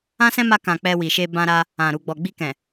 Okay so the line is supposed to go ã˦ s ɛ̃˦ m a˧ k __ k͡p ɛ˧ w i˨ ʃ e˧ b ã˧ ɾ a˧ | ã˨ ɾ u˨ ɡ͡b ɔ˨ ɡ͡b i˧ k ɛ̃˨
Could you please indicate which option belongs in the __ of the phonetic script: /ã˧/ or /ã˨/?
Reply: ã˨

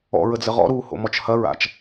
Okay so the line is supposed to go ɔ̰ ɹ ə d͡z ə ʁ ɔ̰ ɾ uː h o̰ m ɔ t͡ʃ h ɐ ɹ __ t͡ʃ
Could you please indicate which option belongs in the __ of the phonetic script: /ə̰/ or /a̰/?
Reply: a̰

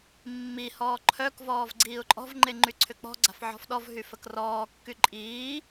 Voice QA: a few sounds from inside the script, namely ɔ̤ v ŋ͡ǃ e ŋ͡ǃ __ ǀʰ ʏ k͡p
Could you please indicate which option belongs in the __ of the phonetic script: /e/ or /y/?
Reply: y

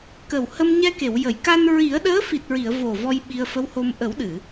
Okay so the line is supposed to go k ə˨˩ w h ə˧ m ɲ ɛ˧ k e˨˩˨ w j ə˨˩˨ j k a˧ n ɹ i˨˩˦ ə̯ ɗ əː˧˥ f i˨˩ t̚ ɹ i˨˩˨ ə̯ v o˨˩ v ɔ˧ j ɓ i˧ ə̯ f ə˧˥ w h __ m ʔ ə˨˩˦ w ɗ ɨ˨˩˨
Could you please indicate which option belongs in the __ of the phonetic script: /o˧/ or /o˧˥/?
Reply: o˧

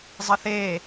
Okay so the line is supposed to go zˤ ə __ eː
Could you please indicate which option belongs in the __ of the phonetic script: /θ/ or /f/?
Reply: θ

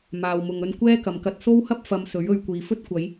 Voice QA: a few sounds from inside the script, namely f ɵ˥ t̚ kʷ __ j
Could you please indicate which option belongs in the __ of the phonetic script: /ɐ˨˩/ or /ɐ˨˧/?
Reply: ɐ˨˧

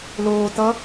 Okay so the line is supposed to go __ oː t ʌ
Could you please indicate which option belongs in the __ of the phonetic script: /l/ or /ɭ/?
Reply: l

